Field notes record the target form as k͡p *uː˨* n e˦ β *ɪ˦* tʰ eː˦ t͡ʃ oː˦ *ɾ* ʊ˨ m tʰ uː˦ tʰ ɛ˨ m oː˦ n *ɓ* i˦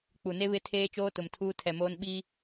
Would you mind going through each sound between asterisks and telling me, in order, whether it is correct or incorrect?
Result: incorrect, correct, incorrect, correct

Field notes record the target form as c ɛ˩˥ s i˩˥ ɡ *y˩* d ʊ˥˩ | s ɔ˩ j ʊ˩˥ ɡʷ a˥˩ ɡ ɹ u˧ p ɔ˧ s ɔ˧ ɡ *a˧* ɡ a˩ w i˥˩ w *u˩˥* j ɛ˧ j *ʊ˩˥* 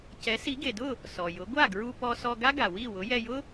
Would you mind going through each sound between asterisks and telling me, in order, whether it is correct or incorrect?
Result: incorrect, incorrect, incorrect, incorrect

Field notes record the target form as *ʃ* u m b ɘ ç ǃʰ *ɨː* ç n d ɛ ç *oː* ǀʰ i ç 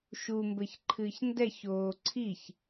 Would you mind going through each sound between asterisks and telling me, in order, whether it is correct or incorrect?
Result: correct, correct, correct

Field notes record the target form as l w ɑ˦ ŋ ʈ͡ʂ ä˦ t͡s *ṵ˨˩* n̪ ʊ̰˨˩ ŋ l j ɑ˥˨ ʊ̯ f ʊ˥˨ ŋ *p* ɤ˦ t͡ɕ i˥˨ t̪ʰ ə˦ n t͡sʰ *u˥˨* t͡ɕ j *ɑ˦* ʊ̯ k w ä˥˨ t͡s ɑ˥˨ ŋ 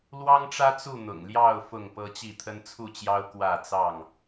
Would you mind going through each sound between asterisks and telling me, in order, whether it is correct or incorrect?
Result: incorrect, correct, correct, correct

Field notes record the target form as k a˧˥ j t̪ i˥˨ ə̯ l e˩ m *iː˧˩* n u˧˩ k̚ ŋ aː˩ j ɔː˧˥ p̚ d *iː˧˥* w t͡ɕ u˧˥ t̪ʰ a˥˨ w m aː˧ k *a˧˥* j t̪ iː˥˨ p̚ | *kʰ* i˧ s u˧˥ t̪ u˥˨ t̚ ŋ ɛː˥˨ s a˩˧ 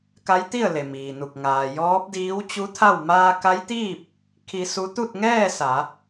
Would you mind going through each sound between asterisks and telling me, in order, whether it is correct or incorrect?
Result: incorrect, correct, correct, correct

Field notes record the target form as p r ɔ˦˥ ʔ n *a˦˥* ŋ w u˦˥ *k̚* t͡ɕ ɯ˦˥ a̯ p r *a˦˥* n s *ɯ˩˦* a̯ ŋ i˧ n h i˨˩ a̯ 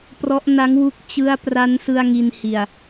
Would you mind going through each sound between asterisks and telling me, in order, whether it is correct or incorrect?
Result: correct, correct, correct, incorrect

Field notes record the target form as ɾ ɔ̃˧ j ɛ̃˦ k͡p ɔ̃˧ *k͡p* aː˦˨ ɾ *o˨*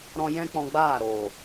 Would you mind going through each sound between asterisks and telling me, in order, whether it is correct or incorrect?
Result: incorrect, incorrect

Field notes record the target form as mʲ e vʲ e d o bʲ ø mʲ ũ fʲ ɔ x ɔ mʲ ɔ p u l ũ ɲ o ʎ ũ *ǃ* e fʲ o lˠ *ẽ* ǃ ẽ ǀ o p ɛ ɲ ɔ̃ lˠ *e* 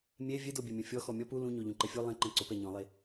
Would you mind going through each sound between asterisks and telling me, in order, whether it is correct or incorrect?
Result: correct, correct, correct

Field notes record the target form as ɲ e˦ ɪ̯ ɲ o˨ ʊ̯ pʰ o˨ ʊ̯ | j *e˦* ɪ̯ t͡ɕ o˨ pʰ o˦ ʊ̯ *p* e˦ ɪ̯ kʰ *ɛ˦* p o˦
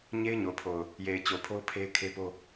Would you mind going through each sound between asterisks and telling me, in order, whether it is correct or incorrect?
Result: incorrect, incorrect, incorrect

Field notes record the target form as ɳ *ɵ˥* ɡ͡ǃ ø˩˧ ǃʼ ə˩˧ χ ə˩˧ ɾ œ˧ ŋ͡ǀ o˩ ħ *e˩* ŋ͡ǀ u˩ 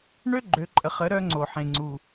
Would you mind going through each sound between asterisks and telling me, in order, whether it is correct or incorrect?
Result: incorrect, incorrect

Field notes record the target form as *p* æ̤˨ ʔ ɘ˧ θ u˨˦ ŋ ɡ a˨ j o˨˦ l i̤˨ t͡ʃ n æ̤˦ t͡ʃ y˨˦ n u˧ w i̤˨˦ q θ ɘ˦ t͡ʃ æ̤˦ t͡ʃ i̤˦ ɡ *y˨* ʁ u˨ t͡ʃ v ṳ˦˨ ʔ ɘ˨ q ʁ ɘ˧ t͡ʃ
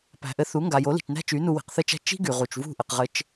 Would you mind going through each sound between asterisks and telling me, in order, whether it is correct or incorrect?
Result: correct, correct

